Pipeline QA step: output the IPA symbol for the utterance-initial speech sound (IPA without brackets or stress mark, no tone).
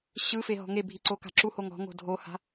ɕ